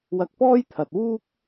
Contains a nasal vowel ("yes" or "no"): no